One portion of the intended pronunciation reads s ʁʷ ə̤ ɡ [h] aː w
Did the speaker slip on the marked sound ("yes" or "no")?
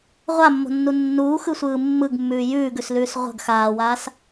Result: yes